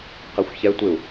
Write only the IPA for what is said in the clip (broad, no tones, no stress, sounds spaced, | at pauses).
q æ xʷ ç ɛ tʷ ɪ u̯